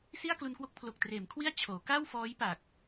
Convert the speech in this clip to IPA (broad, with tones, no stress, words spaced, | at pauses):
si˥˩a̯klu˧nkwo˦˥k̚ pʰlo˨˩k̚treː˩˦mkʰwi˥˩a̯ t͡ɕʰoː˩˦ ka˥˩wfɔː˦˥jpa˨˩k̚